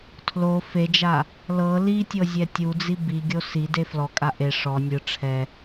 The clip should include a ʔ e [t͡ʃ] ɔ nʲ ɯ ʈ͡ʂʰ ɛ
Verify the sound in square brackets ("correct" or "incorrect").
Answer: incorrect